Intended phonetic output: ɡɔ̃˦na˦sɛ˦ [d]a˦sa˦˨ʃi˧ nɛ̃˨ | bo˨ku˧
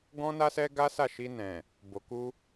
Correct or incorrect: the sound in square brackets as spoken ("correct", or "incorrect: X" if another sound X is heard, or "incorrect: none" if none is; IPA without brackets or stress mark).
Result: incorrect: ɡ